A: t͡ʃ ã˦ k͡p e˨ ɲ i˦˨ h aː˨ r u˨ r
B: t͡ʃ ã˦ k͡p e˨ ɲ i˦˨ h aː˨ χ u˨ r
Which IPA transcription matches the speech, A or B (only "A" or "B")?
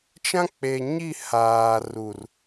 A